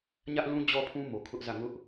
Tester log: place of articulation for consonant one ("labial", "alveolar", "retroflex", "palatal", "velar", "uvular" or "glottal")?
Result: palatal